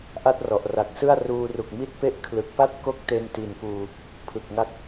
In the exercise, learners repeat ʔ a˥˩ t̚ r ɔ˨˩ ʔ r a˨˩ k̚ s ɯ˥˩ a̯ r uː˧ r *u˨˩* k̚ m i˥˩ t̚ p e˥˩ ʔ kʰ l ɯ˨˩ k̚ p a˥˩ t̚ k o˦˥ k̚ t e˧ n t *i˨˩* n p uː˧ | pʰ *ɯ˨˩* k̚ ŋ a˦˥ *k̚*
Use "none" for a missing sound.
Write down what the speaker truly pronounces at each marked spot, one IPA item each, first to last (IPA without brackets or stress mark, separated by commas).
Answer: u˨˩, i˨˩, ɯ˨˩, k̚